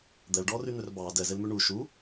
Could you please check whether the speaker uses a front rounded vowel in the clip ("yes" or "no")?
yes